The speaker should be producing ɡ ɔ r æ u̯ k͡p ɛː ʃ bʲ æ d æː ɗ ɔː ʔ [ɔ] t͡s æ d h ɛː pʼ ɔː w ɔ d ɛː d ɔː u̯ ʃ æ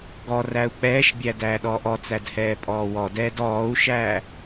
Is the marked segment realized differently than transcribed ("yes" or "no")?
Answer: no